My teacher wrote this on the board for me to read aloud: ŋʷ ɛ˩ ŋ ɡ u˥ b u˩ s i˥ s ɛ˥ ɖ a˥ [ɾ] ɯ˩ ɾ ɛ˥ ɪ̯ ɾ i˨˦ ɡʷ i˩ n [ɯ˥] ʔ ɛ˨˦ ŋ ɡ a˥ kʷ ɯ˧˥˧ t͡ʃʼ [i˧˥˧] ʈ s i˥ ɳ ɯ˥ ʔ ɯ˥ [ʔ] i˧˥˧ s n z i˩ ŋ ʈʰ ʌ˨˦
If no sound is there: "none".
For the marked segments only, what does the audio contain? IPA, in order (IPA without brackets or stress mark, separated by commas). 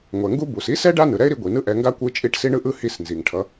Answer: n, ɯ˥, i˧˥˧, h